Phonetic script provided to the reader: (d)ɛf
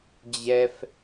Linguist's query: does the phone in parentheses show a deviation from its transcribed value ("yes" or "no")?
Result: yes